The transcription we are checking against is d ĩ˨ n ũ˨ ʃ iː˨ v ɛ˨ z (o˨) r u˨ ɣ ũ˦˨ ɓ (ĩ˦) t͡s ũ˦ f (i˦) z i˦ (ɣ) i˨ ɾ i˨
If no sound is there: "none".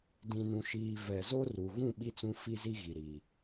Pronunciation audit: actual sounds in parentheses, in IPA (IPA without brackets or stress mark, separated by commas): o˦, i˦, i˦, ɣ